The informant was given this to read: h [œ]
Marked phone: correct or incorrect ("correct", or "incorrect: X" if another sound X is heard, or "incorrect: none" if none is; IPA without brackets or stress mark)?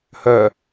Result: correct